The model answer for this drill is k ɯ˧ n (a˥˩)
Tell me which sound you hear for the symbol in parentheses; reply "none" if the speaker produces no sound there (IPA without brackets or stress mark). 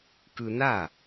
a˥˩